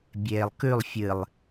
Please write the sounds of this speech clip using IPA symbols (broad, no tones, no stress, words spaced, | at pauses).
bʲeːlˠkʉlˠ fʲɨlˠ